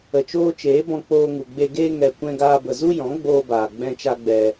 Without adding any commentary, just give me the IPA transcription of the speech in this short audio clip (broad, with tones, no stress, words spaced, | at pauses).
ə˨t͡ʃoː˦t͡ʃeː˨˦ bɔ̃˧k͡poː˧ŋu˨ ɡ͡be˧ɡeː˦ ŋɛ˧ kʷɛ̃˦ɡaː˦bə˧ zu˦jɔ̃˨˦ɡ͡boː˧baː˨ ɡ͡bɛ̃˦t͡ʃa˦ɡ͡bɛ˧